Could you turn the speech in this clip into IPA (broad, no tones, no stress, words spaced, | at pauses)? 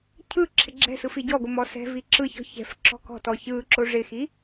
cʰɯ ǁʰɪɡ͡ǁɛ̤sɯ fiɟɔɡʷɪ mɔsɛ̤vi ǁɯçɔ̤ çɛ̤f ǁɔ̤kɔ̤tɔ çɯ ǁoʐɪxi